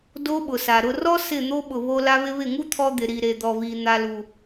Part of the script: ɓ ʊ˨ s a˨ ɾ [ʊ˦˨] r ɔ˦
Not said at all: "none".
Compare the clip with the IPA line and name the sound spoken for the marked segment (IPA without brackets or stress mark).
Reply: ʊ˧